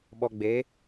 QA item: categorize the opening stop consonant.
implosive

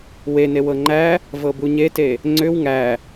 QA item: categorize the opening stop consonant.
click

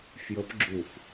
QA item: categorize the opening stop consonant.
plain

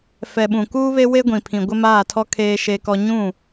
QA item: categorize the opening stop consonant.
implosive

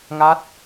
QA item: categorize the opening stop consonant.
plain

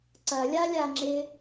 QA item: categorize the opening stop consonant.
click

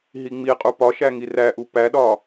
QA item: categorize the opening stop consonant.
ejective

